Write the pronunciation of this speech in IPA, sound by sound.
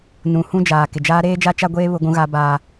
n ũ˨ h ũ˦ d͡ʒ aː˨ k ɪ˨ d͡ʒ aː˦ ɾ eː˦ d͡ʒ a˦ t͡ʃ a˦ ɡʷ eː˦ β ʊ˦ ɡʷ ũ˦ ɣ a˦ b aː˦

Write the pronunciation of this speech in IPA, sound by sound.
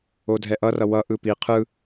o dʱ ɛ ʔ ʌ r ʌ w ʌ ʔ ɯ p i qʰ ɯ

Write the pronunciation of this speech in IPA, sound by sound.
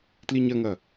t l i ɲ ɐ ŋ ɐ

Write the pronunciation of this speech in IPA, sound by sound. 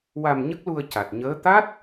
w a˧ m ɲ ə˦˥ k̚ l u˧ ə̯ c a˨˩ t̚ ɲ əː˧˥ t̪ a˦˥ t̚

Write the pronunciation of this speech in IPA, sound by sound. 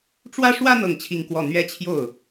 ʈ͡ʂ w ä˥ ʂ w ä˥ n̪ ɤ˥˧ ŋ t͡ɕʰ i˥˧ ŋ k w ɔ˥˩ n̪ ɥ ɛ˥ t͡ɕʰ j o˥˩ ʊ̯

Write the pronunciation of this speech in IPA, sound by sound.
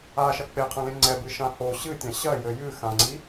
a ʃ ɐ k͡p e qʰ ɐ̃ l ẽ ŋ͡ǀ ɛ b ɨ ʃ ã h o ɕ ɨ tʲ ã ɕ ɐ j ɘ j ɨ x ã ŋ͡ǀ i

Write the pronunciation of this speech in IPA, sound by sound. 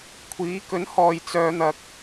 kʷʰ iː˨˥ k ɵ˨˥ n h ɔː˨ j t͡s œː˧ n̪ ɐ˧ k̚

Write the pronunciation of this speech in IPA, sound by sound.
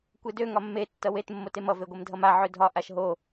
kʷ e d ø ŋ ɒ mː e tː ʌ w e t mː o t e m ʌ v e ɡʷ e m dʱ ʌ m a ʕ ø dʱ ɒ ʔ a ʃ ɦ o

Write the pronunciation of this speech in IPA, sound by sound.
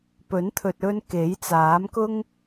p ɵ˨˥ n t̪ʰ ɵ˨ t̚ ɵ˧ n k e˨˥ j t͡s aː˨˥ m k ʊ˥ ŋ

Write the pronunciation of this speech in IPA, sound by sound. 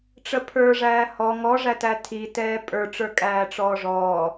ʈ͡ʂ ə pʰ ə˞ ʐ æː h ɔ ŋ ɔ ʐ æ t æ tʰ i t ɛː pʼ ə˞ ʈ͡ʂ ə˞ kʼ æː ʈ͡ʂ ɔː ʐ ɔː

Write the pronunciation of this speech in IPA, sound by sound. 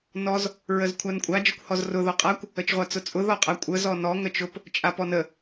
n ɔ z | ɹ ə z kʷʰ a n kʷʼ a d͡ʒ ə kʷ h ɔ z r ʊ ð ɔ qʼ a kʷ | ə t͡ʃ ʁʷ a t͡s ʊ t͡sʼ ʊ ð ɔ qʼ a kʷʼ ə z ɔ n ɔ ŋ ə t͡ʃ ʊ p | t͡ʃʼ a p ɔ n ə

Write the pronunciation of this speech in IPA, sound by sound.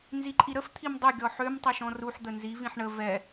n z i ǃʼ i ɾ ə f t̪ʰ i m dˤ ø ɡʲ ɔ ħ ø m tˤ ɛ ʃ ɔ̃ r u ħ d̪ ə n z i v ĩ ħ ɳ ə v ɛ

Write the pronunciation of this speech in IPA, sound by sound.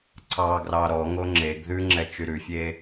ǀ ɑ ɡ r ɑ ɾ ɔ ŋ o ŋ͡ǁ e ɡ ð ʉ ŋ͡ǁ ɛ t͡ʃ y ɾ ʉ fʲ e

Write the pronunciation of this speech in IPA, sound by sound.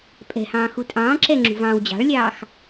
pʼ ɛ̤ h ɑ̃ː x u tʼ ɑ̃ː ǁ ɛ ŋ͡ǁ ṳ v ɑ̃ː w d͡ʑ ɑ̤ ɭ lʲ ɑː x

